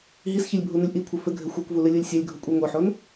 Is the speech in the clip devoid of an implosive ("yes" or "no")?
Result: yes